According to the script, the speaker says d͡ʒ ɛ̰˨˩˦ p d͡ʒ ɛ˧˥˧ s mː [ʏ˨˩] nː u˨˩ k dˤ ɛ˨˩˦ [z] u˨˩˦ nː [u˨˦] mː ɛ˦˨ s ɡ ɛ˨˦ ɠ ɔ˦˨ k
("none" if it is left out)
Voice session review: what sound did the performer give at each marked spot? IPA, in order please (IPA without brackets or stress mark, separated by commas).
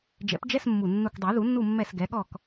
u˨˩, ð, u˦˨